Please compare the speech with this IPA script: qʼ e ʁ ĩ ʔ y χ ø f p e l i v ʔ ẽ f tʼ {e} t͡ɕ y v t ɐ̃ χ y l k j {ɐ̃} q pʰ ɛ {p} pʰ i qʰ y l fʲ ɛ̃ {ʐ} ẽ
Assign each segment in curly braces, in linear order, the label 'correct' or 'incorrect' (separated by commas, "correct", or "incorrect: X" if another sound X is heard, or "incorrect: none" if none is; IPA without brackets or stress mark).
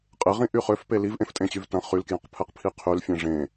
incorrect: ẽ, correct, incorrect: q, correct